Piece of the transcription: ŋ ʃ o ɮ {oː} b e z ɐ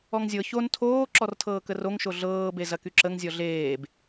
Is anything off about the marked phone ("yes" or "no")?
yes